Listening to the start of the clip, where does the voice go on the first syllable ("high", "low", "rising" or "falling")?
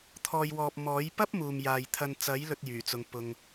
low